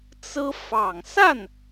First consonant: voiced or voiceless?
voiceless